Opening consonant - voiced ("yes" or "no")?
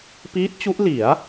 no